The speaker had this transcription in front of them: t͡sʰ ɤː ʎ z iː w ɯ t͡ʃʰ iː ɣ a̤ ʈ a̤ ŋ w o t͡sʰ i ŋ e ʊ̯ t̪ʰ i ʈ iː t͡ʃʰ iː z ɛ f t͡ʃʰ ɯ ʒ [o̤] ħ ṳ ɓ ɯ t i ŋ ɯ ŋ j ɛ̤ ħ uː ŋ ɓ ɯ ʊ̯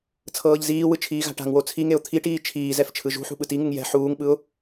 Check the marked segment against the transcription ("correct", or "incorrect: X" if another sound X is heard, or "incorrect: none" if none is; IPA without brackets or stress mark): incorrect: ṳ